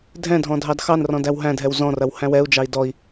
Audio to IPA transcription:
dʱɛ̃dʱɔ̃ dʱɑdxɑnrɔ̃ dæwɦæ̃dʱɛw zɔ̃rɐw hæ̃wɛu̯d͡ʒɑi̯ dɔi̯

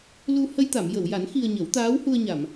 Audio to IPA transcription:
lu˧ hə˧jt̪a˨˩˨mjə˨˩˨wja˨˩˦n xi˧ə̯ɲə˨˩˦w t̪aː˧˥whu˧ə̯ɲa˨˩˨m

